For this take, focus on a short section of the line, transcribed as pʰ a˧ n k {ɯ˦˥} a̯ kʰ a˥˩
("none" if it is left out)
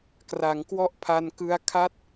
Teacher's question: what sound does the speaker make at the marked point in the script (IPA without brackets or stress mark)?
ɯ˧